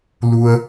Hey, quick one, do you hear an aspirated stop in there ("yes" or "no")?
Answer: no